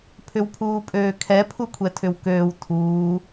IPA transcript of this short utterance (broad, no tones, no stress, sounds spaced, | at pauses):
pʰ ʏ w pʰ uː pʼ øː kʰ ɛ pʰ u kʷʰ ɛ tʰ ʏ w k øː w tʰ uː